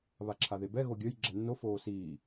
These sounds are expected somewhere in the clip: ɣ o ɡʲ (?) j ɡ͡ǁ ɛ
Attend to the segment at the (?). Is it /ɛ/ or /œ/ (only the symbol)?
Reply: œ